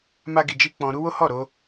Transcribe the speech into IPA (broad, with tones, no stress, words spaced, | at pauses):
ma˦ɡi˧d͡ʒi˦ k͡pɔ̃˧ ɾu˦wo˦ hɔ˦˨ɾo˧